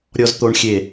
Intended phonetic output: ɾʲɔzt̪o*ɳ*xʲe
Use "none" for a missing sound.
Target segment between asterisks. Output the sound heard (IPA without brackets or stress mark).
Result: ɳ